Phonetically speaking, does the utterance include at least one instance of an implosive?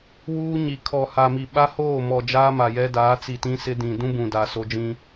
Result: yes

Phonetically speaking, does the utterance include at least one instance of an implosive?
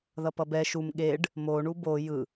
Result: yes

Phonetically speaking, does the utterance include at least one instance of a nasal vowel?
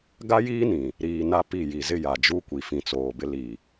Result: yes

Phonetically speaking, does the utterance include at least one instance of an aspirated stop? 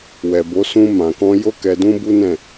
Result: no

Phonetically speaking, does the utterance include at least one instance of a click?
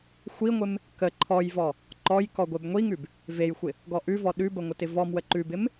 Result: yes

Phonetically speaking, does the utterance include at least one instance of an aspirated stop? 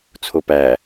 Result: yes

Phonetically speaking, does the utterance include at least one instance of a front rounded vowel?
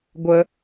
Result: no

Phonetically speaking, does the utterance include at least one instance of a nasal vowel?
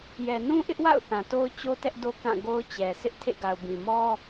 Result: yes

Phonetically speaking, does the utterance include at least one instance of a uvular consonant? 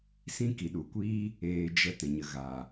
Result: no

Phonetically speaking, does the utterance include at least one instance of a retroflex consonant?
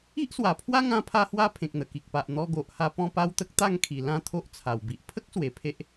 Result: no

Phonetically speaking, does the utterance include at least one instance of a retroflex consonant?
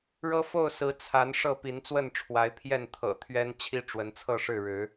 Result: yes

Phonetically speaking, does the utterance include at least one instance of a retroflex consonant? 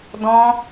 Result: no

